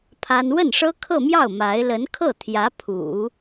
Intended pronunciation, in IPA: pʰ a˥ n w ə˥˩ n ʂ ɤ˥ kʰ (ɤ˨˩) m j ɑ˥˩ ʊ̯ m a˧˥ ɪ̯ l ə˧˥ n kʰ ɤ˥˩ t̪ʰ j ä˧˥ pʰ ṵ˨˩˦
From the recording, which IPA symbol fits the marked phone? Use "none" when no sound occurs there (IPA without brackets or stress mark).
ɤ˥˧